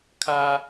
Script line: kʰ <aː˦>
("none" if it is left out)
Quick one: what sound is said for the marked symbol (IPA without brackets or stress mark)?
aː˦